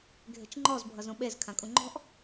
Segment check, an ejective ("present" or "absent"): present